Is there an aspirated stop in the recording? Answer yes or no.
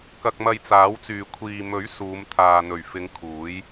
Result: yes